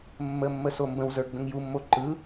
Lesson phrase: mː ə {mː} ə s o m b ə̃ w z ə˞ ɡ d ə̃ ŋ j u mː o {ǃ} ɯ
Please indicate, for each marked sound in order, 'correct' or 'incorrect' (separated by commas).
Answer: correct, correct